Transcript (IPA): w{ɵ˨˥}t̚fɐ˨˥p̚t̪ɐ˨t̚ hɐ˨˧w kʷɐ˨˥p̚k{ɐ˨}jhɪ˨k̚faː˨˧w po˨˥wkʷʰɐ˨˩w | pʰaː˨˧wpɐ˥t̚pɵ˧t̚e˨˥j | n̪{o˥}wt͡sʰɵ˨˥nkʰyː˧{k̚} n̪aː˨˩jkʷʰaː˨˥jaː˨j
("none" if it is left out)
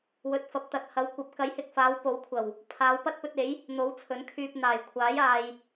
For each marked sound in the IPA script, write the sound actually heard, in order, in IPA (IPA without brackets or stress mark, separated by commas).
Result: ɵ˨˥, ɐ˨˥, o˨˥, p̚